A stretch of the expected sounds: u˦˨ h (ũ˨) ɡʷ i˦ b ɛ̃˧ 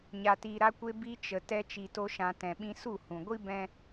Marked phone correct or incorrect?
correct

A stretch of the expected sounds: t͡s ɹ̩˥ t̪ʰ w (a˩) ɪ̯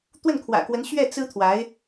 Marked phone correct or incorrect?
incorrect: a˧˥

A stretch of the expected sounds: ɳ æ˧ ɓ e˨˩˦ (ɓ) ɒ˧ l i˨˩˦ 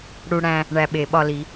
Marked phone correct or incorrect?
correct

